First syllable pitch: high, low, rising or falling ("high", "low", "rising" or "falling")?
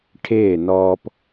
falling